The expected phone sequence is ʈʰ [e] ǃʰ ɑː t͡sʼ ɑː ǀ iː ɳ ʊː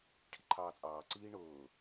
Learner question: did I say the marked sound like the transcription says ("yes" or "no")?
no